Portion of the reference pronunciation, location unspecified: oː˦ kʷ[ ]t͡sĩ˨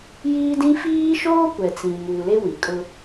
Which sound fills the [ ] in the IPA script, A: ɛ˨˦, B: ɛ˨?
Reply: B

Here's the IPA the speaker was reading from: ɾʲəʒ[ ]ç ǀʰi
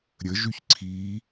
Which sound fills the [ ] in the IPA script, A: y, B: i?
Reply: A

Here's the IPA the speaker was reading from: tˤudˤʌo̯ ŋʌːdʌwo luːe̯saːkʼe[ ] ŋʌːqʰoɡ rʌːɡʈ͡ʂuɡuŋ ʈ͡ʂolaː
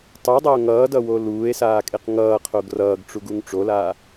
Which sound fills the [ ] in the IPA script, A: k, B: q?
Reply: B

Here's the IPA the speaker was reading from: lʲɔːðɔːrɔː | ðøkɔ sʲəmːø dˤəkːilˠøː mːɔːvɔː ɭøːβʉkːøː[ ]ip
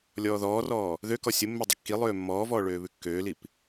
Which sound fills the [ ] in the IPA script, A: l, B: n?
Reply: A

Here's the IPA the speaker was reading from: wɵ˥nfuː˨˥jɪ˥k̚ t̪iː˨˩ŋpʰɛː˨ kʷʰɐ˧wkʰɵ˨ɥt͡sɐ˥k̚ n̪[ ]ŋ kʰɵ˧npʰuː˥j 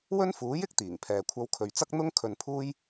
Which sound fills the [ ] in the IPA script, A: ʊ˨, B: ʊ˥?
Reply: B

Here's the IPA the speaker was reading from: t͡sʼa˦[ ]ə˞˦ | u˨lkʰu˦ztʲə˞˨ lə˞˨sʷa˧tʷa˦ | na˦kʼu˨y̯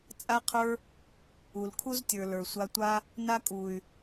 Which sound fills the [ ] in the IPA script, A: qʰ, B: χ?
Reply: A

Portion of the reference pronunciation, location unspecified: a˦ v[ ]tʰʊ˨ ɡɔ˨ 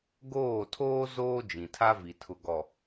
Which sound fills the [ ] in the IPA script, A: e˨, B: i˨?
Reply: B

